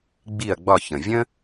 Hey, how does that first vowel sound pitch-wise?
falling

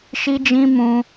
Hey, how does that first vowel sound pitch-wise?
high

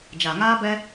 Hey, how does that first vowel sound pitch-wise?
low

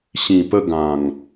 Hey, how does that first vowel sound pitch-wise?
low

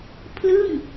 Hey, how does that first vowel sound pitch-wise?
falling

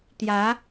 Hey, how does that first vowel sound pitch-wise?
rising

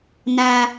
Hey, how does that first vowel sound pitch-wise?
low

